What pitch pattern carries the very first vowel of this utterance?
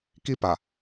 high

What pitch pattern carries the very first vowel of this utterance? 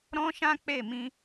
high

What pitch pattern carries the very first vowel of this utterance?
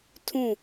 falling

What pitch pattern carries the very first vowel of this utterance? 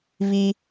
high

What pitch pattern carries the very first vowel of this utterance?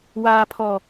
low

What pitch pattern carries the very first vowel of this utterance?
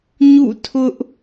falling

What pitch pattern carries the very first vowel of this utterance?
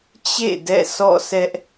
falling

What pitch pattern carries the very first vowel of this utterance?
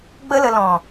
high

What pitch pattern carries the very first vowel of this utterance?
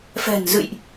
low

